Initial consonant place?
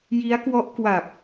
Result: palatal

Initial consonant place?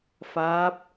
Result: labial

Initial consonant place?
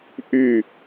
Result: glottal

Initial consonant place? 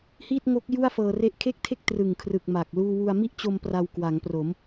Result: glottal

